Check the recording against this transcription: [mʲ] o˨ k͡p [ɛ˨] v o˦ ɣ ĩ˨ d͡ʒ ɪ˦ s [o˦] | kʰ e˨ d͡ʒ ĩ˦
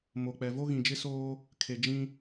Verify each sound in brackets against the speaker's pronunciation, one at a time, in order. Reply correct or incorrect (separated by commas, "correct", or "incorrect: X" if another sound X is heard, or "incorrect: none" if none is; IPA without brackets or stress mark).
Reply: incorrect: m, correct, incorrect: oː˦